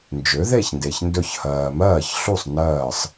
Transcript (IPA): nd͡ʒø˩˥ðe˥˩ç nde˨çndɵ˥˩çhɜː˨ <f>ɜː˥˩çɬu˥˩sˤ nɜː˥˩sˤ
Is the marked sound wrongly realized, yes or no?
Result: yes